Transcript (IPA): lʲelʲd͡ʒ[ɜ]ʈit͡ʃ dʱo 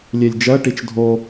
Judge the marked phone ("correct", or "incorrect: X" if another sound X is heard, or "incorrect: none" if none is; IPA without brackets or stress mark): correct